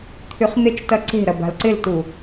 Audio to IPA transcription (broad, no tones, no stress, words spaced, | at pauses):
t̪ʰyχn̪et͡ʃtɐ ǀe̤ɾɐ ba̤lǀɪltu